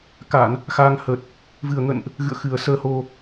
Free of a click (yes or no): yes